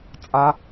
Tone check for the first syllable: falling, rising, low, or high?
low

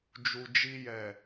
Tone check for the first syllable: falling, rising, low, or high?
low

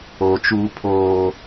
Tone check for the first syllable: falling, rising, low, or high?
low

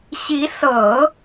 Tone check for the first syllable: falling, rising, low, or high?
rising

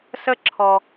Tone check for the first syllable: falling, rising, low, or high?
high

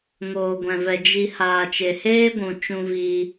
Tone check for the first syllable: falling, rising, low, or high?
low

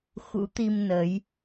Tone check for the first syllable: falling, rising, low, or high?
rising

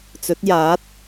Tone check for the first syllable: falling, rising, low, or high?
rising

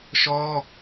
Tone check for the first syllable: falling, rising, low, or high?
high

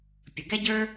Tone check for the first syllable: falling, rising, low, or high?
low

